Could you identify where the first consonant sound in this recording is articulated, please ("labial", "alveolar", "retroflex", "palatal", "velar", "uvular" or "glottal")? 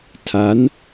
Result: alveolar